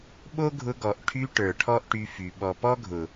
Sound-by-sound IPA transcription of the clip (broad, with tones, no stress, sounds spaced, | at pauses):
ɓ o˦ ɡʱ ʊ˧ ɡ ɔ˨ ʔ ʈʰ y˧ ʈ ə˞˨ ʈʰ ɔ˦ ʔ ʈ y˧ f y˨ ɓ ɔ˨ p ɔ˦ ɡʱ ʊ˨